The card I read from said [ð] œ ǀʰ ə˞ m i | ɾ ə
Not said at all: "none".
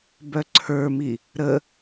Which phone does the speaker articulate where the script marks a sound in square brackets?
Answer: b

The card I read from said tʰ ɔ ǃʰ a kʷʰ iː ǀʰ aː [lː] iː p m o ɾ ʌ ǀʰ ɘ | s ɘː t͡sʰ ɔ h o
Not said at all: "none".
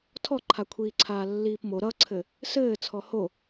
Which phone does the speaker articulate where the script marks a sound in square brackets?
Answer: lː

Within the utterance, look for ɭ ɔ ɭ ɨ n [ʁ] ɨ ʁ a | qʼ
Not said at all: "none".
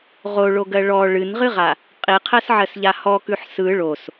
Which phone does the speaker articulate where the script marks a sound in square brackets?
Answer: ʁ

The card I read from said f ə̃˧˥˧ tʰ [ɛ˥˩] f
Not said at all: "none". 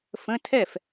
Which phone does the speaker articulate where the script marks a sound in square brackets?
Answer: ɛ˥˩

